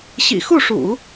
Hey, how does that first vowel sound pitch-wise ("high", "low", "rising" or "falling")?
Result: low